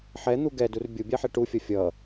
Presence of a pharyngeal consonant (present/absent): present